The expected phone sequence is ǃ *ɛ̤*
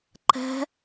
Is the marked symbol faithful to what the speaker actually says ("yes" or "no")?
yes